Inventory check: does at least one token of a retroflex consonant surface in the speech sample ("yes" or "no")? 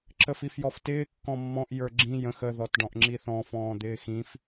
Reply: yes